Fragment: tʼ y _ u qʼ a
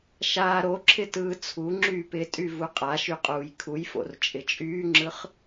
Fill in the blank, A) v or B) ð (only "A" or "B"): A